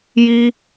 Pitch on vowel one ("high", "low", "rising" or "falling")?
high